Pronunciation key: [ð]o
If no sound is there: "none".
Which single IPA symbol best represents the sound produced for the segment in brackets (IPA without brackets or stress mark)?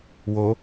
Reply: w